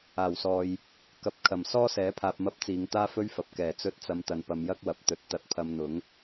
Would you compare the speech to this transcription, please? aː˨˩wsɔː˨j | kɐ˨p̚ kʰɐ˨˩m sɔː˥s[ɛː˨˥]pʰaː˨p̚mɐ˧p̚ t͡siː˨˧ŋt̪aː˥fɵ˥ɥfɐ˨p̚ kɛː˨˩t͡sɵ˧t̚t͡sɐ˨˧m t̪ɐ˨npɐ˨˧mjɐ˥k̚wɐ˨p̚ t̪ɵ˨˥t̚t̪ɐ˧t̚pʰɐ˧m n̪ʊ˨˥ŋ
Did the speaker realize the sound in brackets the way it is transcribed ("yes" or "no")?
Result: yes